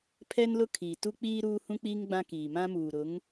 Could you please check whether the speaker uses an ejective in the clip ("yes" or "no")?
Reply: no